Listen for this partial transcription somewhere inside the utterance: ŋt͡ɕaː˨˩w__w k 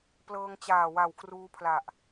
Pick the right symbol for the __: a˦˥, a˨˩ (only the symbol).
a˨˩